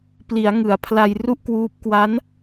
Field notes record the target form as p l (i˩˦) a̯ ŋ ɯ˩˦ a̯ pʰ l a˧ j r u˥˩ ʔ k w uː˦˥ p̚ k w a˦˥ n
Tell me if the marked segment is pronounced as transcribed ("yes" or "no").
yes